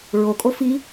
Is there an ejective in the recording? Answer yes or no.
yes